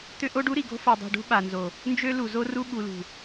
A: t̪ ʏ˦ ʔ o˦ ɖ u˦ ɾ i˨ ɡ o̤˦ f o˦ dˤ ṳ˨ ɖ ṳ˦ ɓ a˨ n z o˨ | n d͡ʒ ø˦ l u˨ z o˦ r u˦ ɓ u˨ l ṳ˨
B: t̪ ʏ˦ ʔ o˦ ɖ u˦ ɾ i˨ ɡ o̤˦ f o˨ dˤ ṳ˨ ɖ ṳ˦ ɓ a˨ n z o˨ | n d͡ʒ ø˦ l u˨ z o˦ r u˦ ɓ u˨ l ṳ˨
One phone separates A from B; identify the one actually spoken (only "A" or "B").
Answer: B